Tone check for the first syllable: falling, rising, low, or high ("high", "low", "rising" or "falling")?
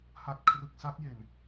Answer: low